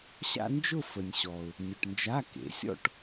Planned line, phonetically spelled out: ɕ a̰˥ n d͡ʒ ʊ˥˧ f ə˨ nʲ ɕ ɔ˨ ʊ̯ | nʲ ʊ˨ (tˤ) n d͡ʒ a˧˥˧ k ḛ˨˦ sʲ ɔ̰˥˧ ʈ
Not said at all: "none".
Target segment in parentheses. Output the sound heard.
ʈ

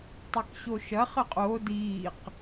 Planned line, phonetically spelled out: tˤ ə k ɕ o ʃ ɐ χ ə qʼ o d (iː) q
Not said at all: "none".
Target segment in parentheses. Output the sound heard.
iː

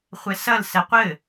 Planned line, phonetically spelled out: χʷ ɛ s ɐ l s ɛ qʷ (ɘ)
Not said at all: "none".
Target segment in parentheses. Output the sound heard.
ɘ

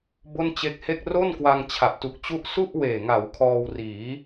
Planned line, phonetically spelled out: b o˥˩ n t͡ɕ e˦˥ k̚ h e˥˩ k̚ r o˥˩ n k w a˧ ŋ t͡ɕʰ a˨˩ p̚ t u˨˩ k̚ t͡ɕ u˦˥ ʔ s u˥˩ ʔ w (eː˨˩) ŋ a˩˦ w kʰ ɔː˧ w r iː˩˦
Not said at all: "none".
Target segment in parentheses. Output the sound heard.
eː˨˩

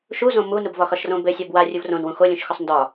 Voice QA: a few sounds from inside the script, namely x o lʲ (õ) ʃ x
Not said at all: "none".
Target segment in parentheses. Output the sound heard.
ũ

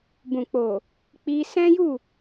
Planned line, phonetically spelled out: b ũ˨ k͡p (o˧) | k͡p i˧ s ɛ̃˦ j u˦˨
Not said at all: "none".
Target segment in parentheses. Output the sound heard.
o˨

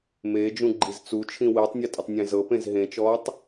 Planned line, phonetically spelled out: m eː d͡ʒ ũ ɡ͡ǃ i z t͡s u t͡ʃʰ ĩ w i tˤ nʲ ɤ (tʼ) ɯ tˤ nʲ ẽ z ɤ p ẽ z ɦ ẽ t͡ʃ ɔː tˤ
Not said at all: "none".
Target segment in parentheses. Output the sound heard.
tʼ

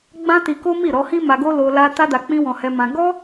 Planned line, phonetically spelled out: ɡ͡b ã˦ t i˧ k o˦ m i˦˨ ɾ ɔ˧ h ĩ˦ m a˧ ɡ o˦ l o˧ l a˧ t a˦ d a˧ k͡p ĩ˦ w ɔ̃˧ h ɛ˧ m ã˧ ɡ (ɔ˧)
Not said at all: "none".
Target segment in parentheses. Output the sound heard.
ɔ˦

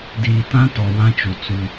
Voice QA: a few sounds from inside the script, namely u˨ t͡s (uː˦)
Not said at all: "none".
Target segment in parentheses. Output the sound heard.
u˦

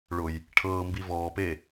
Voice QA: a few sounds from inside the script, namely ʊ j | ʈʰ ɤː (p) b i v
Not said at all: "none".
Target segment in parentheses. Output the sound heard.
m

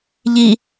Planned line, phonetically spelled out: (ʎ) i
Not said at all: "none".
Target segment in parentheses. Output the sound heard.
ʎ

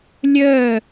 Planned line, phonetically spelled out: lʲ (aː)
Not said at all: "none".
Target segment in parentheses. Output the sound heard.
əː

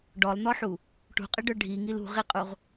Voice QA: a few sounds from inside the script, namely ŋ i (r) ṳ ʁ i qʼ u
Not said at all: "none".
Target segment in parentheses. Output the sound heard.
l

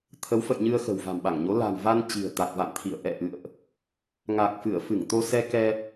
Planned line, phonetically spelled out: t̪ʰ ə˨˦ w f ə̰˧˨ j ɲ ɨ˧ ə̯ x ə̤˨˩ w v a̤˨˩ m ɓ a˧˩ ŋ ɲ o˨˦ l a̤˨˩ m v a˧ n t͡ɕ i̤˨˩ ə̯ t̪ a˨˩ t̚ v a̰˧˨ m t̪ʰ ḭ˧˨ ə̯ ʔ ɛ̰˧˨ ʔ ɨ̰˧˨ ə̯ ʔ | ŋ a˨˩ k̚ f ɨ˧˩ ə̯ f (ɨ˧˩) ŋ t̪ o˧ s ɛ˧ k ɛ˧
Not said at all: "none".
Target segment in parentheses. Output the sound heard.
ɨ˧˩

